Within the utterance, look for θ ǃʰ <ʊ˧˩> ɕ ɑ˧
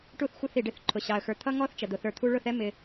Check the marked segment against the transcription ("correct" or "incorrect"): correct